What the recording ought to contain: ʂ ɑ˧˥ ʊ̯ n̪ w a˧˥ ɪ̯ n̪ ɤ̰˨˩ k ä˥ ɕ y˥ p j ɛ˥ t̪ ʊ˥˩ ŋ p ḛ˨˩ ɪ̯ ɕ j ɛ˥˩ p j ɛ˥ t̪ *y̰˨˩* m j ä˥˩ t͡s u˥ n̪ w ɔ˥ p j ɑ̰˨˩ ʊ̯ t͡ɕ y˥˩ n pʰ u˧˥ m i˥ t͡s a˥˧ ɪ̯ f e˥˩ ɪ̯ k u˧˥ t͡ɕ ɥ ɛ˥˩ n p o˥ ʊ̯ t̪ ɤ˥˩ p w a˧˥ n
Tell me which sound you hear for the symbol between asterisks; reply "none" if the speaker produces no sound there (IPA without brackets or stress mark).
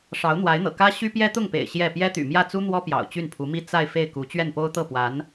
y̰˨˩